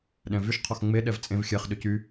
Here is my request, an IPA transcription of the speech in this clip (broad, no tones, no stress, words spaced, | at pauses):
ɗɛ̃vyʃ qʰɔxŋ͡me ɗɛvt͡sʼẽv xʲɛχ ɗʏcy